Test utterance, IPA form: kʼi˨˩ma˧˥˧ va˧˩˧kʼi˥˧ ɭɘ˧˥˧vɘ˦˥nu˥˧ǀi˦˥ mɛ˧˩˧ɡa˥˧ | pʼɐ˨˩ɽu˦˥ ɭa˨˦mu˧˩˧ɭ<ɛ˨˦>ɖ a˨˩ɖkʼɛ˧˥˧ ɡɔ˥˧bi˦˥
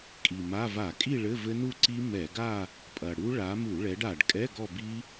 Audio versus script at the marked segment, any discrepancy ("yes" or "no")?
no